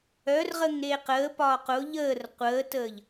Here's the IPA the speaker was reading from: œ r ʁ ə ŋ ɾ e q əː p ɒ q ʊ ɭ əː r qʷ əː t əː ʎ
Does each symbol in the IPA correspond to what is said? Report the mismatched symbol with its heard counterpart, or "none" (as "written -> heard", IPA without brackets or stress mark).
ɭ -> ʎ